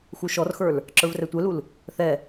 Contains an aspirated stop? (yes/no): no